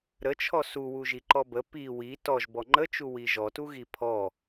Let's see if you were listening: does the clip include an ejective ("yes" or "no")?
no